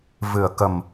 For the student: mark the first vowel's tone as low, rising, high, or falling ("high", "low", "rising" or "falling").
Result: low